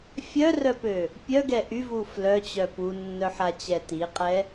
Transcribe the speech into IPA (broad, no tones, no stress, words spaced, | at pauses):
fʲœrœpø | pʲœɡɛ ʔyvu flœt͡ɕœ punːœħat͡ɕɛ tiqʼɛ